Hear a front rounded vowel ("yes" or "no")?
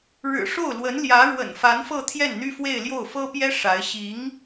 yes